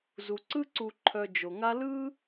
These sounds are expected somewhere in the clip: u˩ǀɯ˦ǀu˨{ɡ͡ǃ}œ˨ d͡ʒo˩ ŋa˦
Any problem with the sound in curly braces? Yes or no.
yes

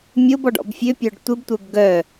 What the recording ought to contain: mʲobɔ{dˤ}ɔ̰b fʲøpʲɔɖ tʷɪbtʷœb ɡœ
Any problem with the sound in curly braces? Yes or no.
yes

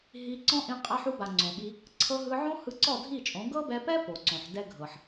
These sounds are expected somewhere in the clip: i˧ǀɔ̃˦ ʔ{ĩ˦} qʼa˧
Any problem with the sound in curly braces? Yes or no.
yes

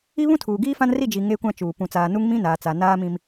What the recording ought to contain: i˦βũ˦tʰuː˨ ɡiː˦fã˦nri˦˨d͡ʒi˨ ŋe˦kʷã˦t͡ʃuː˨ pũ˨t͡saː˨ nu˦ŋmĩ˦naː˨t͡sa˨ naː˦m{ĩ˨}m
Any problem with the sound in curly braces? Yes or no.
yes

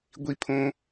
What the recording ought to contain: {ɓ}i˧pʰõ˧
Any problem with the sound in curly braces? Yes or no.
yes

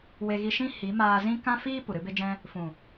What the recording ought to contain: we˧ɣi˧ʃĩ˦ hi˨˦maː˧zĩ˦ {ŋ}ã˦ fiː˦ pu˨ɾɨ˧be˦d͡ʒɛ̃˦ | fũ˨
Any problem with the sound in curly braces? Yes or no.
yes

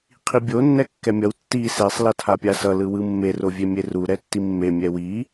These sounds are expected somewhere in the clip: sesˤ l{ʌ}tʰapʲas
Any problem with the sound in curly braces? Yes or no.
no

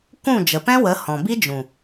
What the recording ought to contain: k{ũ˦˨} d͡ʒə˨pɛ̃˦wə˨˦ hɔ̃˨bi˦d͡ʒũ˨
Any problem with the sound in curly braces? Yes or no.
no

